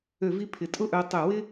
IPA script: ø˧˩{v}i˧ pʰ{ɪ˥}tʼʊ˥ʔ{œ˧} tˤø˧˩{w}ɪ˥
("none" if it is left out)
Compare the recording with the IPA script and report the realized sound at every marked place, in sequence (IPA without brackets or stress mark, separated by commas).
v, ɪ˩˧, œ˧, w